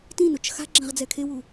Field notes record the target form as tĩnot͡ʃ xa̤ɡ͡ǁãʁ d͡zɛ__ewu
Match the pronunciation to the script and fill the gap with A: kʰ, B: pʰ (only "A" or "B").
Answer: A